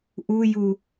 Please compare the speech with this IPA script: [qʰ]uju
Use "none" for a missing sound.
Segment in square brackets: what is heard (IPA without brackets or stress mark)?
ʔ